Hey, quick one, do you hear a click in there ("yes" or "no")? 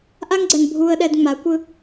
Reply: yes